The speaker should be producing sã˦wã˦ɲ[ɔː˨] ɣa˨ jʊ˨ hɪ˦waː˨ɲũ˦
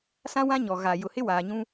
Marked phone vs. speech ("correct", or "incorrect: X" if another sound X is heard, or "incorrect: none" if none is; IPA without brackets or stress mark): incorrect: ɔ˨